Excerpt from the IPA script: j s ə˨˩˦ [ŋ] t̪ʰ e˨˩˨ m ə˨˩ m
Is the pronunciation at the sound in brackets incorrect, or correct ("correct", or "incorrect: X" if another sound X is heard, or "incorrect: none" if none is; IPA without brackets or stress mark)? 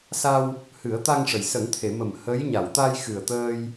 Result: correct